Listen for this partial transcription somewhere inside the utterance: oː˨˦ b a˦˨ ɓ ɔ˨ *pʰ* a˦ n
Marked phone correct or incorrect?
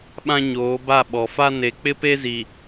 incorrect